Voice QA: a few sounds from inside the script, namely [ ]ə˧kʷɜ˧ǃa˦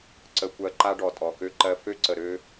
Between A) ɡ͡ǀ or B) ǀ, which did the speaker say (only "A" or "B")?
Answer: B